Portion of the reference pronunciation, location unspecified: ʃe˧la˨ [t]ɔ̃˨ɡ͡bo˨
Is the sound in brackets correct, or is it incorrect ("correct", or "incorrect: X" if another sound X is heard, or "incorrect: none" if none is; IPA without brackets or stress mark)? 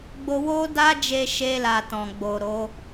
correct